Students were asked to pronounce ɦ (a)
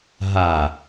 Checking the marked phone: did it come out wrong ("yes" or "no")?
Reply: no